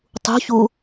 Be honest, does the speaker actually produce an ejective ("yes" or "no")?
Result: no